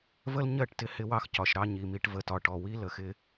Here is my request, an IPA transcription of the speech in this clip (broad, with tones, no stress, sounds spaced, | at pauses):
v ə˦ l ɲ ɜ˦˨ ʈ t ɪ˦ h ɪ˦ w ɑ˦ x c ɒ˨ ʃ ɾ ɑ˦ ɲ i˨ m i˦ ʈ v ə˨ t ɒ˨ ʈ ɔ˨ w i˦ l ə˨ x ɪ˦